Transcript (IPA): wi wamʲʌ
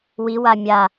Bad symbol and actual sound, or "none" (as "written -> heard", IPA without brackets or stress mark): ʌ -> a